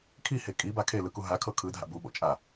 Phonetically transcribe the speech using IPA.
kʰ i h e kʼ i b a kʰ e l ɯ k u ɦ a kʰ ɤ kʰ ɯ dʱ a̰ b u ɓ o̰ t͡ʃʼ a

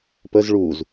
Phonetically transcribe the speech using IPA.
p ə z ɭ u z

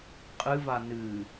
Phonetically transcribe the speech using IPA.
qʼ ɨ v a n ɨ

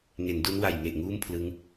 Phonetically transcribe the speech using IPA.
ŋ e˩˦ n d u˦˥ n w a˨˩ j ŋ e˨˩ ʔ ŋ uː˥˩ m pʰ l ɯ˦˥ ŋ

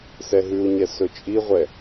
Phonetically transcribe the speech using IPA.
s ɛ ɦ ʉ u̯ ɲ ɛ s ɵ t͡ʃʼ i ʁʷ ɛ

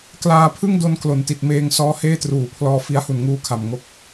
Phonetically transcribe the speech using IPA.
k l aː˧ pʰ ɯ˥˩ ŋ d o˧ n k l o˩˦ n t i˨˩ t̚ m eː˧ ŋ s ɔː˦˥ h eː˥˩ t r uː˨˩ pʰ l ɔː˧ f i˦˥ a̯ h u˨˩ n ŋ uː˧ kʰ a˨˩ m ŋ o˦˥ k̚

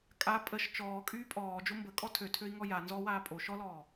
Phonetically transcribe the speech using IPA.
kʼ a pʼ ə ʃ t͡ʃ ɔː kʼ yː pʼ ɔː d͡ʒ o m b ə kʼ ɔ tʰ ø tʰ ø i̯ ŋ ɔ j a n z ɔ w aː pʼ o ʃ ɔ l ɔː

